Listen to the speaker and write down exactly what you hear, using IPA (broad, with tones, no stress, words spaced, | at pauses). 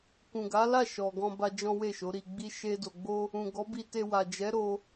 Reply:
kũ˨ɡa˨˦la˦˨ ʃɔ˨ɡɔ̃˧ba˧ d͡ʒɔ̃˦we˦˨ʃo˨˦ ɾi˧ɡ͡bi˦ ʃe˦do˧ ɡ͡bo˦ | ũ˨ɡɔ˨˦bi˧te˧ wa˨d͡ʒɛ˨˦ɾo˧